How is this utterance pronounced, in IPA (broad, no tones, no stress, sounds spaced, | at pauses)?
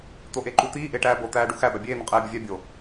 t̪ o ʔ e ǃ u t̪ iː ʔ e ʈ æː b o t̪ æː ɖ u x æ b æ bʲ eː n̪ ɒ qʼ eː bʲ o vʲ æ bʲ o